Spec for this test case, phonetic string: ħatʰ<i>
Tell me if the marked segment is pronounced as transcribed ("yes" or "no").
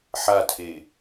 no